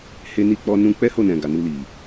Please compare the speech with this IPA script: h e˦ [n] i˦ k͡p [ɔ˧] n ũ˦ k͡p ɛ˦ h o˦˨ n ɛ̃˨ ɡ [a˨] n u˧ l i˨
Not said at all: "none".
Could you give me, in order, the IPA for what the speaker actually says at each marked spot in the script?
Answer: n, ɔ˦, a˨

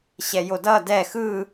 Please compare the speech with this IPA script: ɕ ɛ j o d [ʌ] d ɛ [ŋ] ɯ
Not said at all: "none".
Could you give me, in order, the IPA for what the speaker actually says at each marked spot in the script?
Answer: ʌ, x

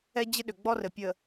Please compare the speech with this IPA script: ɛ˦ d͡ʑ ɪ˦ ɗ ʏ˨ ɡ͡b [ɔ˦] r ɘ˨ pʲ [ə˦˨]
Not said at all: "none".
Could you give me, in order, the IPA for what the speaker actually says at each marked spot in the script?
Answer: ɔ˦, ə˨

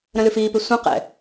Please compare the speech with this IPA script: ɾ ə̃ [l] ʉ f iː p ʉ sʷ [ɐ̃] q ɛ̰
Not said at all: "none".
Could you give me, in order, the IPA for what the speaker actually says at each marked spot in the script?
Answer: l, ɐ̃

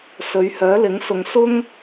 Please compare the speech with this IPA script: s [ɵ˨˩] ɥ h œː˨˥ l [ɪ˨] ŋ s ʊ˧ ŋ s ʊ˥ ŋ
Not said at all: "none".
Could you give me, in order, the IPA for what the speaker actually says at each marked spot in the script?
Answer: ɵ˨˧, ɪ˨˥

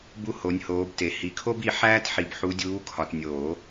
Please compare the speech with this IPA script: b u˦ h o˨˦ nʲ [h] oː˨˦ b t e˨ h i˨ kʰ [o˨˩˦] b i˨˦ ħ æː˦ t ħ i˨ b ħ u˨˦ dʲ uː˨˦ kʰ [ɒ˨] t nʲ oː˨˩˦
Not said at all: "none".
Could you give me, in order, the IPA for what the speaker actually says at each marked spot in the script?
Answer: h, o˦, ɒ˨

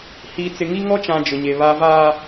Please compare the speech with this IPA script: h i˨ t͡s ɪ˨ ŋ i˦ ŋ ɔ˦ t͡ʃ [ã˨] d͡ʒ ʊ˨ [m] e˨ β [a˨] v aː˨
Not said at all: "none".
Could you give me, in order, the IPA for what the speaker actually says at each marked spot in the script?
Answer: ã˨, ɲ, a˨

